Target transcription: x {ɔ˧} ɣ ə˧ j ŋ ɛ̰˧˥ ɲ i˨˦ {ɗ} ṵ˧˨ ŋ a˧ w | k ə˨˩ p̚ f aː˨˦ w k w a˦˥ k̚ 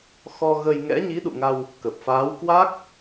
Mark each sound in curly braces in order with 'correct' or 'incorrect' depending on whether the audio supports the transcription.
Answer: correct, correct

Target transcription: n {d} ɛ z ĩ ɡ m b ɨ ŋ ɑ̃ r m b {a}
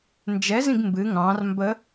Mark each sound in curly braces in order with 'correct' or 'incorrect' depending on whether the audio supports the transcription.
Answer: incorrect: d͡ʒ, incorrect: ə

